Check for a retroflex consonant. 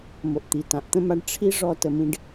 present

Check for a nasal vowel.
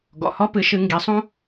present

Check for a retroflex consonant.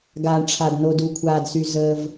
present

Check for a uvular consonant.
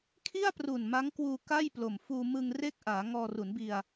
absent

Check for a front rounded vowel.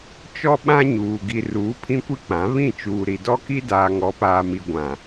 absent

